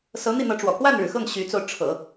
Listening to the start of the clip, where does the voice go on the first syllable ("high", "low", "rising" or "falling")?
rising